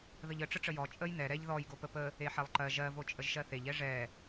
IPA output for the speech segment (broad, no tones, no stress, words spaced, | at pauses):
ðəʎə ʈ͡ʂəʈ͡ʂəjɔ t͡ʃʼəj nɛ ɾɛʎ ðɔj ɡopəpə | eħɛlˠǃɜ ʒɜ vot͡ʃʼəʒʃɜθeʎ ɛʐɛ